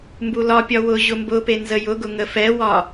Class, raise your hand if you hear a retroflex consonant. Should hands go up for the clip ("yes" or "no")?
no